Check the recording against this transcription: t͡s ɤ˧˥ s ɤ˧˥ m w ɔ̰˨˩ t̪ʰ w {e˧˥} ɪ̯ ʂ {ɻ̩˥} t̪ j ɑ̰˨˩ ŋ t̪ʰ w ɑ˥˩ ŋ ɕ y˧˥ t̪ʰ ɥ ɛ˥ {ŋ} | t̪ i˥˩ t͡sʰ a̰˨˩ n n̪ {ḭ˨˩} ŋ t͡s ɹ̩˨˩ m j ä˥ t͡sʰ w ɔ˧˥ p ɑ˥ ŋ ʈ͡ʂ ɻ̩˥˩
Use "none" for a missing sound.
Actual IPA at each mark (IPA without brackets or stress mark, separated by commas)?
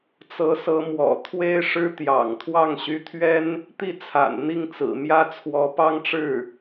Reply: e˥, ɻ̩˥, n, i˥˩